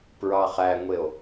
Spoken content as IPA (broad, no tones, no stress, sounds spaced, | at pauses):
p ɹ ɑ χ æ ŋʷ e o̯